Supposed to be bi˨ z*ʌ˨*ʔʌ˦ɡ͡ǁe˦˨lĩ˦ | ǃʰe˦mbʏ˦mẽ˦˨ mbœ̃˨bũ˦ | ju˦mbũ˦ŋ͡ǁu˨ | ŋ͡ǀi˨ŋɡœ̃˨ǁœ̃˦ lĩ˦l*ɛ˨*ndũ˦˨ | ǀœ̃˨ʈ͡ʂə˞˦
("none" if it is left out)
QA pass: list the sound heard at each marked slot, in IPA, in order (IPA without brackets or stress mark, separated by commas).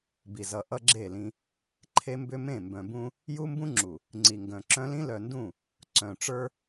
ʌ˨, œ˨